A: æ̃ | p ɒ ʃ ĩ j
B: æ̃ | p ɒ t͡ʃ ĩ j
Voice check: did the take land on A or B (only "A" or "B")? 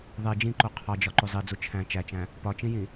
B